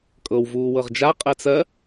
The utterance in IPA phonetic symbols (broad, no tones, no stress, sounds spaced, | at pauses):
kʼ ɤ w v uː w ɤ ʁ d͡ʒ a qʼ ɜ t͡s ɜ